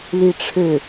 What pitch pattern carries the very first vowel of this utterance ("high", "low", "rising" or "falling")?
falling